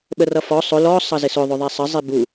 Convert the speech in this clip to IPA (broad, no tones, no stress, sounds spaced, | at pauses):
ɓ ə r ʌ f ɔ sˤ ʊ l ɔ sˤ ʌ z ɪ s ʊ ðˤ ʊ ðˤ ɛ sˤ ə zˤ i b u